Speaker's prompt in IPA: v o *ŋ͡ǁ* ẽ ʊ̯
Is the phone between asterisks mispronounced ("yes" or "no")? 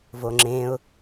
no